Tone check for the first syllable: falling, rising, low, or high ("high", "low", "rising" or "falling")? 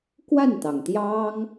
falling